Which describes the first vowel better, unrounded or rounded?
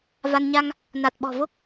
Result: unrounded